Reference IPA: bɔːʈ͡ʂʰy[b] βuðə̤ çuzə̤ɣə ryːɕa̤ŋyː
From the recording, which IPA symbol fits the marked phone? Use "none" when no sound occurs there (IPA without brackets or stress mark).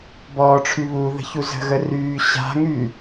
none